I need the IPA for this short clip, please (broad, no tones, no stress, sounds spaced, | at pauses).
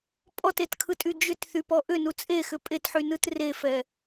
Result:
pʼ ɔ t e t kʰ ɯ tʼ y d͡ʒ ʏ t θ y p ɔ ʔ ʏ n u t͡sʼ e x ʏ pʼ e t ħ y n ɯ t r e f ɛ